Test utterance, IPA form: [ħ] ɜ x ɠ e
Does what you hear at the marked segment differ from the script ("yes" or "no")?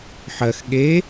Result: no